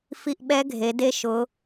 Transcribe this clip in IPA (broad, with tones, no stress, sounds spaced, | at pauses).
f i˧˥˧ ʔ ɓ ɛ˧˥ ɡʱ e˩˧ d e˧˥ ʃ ʊ˩˧